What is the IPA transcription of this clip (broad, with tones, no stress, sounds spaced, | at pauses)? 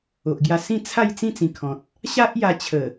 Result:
o˨ ʔ ɡ j a˧ s ĩ˥˧ t͡sʰ a˥˧ j t͡s ĩ˥˧ t͡s ĩ˨˩ kʰ ɔ̃˨ t̚ | ɕ a˦ ʔ j a˧ t͡ɕʰ ə˨˩